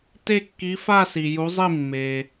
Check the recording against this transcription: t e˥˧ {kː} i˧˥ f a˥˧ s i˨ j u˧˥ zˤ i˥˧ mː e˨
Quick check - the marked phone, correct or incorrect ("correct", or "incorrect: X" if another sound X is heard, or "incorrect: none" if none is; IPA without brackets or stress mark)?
correct